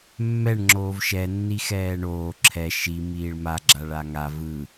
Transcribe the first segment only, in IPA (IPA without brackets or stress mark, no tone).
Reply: mː